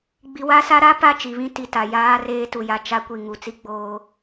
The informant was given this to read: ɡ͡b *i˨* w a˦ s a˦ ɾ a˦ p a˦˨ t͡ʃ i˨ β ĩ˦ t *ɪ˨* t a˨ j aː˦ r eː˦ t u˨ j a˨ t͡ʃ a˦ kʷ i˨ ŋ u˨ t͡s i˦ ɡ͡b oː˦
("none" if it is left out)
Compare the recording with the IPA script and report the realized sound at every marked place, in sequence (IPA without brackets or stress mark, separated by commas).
i˨, i˨